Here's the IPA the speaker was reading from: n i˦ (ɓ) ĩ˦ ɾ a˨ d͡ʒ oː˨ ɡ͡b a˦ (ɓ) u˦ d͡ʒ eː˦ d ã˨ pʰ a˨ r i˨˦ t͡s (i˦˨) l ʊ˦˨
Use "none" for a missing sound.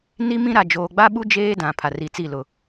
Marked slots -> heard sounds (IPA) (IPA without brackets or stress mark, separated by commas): m, ɓ, i˦˨